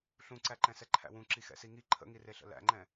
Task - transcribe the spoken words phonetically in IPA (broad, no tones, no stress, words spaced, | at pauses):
ɬũǀæǃɛ̃ sɛǃʰæ̰wũ ǁixɛ̰siŋi ǃʰə̰ŋireɬə̰ læ̰ŋ͡ǃɛ̃